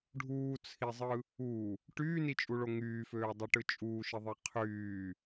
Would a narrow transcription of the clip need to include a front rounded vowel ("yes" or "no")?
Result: yes